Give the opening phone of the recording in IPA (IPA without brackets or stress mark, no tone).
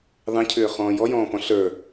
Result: ðˤ